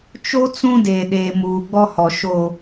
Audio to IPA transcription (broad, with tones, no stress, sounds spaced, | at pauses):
t͡ʃ o˦ t͡s ũ˦ d eː˨ ɗ eː˨ m uː˨ ɡ͡b ɔ˦ h ɔ˨ ʃ o˨